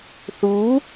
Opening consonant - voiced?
no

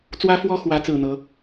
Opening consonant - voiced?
no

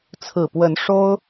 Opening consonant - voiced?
no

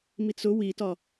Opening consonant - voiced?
yes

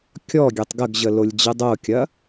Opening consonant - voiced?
no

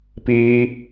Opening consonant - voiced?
no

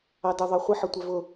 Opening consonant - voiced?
yes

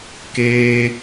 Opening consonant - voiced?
no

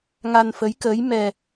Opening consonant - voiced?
yes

